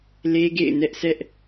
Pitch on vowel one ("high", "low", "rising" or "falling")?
high